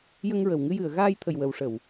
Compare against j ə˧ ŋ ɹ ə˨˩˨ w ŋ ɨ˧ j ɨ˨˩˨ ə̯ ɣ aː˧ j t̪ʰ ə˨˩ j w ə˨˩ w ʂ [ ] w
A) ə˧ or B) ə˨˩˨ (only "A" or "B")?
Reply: B